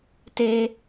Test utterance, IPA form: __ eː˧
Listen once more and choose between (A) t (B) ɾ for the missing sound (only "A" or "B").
A